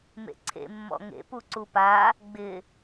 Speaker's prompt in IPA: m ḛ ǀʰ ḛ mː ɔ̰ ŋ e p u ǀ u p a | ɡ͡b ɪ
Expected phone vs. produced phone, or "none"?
e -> ḛ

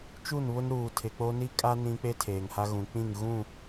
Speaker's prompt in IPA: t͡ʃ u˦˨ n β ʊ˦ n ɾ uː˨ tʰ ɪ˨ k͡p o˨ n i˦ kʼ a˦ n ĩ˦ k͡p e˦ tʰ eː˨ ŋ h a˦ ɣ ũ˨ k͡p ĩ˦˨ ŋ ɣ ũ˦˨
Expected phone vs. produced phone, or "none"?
o˨ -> o˦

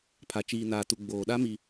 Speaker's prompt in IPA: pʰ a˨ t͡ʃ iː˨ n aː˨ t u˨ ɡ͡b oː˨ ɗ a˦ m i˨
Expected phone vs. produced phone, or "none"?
none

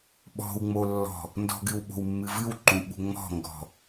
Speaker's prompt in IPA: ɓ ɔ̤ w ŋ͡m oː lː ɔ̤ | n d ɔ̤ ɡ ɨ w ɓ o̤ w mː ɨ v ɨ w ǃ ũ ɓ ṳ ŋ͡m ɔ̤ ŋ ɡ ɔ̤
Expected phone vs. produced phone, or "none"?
oː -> o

